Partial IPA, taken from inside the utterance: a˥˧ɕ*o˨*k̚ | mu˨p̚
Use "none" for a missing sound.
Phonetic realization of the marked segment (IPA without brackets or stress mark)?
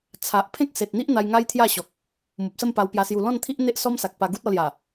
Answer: ɔ˨